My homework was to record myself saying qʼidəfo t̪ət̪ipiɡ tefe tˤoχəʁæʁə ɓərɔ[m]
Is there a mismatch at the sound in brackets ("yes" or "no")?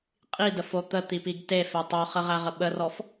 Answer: yes